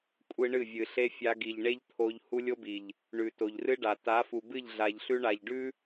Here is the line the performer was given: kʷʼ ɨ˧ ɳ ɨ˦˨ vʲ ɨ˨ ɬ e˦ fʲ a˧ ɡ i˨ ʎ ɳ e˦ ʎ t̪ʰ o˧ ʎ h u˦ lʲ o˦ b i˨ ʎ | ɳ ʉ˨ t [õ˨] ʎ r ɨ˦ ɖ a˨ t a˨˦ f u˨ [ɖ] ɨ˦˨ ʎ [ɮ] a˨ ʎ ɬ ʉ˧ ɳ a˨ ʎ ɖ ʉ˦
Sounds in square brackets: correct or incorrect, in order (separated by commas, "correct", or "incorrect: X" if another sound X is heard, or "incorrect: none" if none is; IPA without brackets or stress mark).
incorrect: o˨, incorrect: b, correct